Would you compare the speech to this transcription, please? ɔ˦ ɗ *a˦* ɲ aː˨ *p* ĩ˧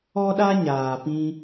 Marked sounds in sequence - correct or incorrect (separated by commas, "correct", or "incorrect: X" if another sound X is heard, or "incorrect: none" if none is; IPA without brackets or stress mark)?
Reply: correct, correct